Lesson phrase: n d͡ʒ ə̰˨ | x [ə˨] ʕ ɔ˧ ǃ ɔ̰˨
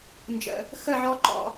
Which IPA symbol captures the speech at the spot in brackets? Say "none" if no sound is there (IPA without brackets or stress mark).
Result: ə˦˨